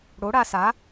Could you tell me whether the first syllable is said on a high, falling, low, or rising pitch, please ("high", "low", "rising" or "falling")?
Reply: rising